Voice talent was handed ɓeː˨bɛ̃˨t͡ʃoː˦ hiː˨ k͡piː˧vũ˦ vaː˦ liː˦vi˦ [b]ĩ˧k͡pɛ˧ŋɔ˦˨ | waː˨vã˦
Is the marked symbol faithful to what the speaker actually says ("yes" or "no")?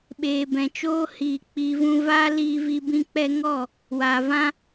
yes